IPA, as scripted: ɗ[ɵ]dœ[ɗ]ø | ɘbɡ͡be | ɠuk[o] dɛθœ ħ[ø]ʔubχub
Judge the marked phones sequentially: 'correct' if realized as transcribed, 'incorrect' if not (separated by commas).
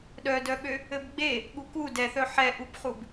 incorrect, incorrect, incorrect, incorrect